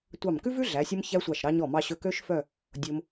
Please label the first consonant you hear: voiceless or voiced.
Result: voiceless